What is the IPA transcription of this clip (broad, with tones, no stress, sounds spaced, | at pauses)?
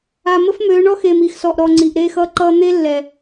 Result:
a˨ m ə˦ f m øː˨˦ ɳ ɔ˦ x eː˨ m iː˨ x s ɔː˨ ʔ ɾ ɔː˨ ŋ͡ǀ iː˨ ʔ ɾ eː˦ x ʌː˦ ǃ ʌː˦ n̪ e˦ lː ɛ˨